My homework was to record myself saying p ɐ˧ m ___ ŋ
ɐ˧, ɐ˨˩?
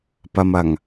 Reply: ɐ˨˩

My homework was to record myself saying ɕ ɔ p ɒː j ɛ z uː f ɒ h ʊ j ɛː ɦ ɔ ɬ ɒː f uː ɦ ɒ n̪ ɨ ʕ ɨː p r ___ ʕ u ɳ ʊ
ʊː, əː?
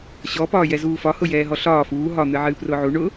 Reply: ʊː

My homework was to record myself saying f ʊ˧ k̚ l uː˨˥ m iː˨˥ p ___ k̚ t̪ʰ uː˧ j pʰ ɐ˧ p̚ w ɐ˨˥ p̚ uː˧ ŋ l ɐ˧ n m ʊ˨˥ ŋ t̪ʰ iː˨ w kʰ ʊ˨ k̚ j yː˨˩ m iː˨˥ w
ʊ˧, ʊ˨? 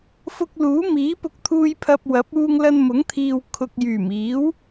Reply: ʊ˧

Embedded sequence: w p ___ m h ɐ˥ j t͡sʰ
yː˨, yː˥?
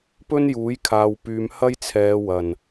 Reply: yː˨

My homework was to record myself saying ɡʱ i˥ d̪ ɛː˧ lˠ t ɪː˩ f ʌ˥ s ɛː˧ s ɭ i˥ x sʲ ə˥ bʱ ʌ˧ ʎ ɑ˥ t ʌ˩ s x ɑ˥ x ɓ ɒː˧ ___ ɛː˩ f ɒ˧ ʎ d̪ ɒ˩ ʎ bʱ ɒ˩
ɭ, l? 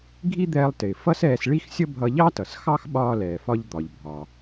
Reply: l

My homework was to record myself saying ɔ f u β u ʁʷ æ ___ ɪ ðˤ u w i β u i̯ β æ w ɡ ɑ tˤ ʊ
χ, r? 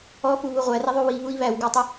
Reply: r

